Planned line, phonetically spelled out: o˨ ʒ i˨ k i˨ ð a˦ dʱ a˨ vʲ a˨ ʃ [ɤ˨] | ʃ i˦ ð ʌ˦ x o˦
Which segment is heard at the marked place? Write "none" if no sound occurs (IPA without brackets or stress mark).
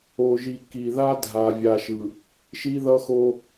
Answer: ɯ˨